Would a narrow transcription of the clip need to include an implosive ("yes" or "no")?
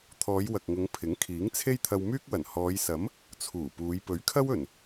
no